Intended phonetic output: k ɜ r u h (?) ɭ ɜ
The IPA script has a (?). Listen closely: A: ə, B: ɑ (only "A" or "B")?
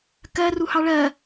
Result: B